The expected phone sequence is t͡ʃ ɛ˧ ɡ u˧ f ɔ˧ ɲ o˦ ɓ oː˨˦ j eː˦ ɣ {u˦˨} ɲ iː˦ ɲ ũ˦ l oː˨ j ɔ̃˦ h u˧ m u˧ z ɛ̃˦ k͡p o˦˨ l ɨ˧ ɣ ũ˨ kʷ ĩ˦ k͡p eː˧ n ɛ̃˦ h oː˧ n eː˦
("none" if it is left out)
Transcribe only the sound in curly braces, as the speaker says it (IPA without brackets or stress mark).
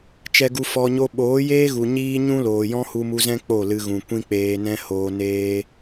u˨